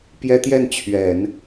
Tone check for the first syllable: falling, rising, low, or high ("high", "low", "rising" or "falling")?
high